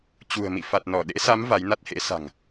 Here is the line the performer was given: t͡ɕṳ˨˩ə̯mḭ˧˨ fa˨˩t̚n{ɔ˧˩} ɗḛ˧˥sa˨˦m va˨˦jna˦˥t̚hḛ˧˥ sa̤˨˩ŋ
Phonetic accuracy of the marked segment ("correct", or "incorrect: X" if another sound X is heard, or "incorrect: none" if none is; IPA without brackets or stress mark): correct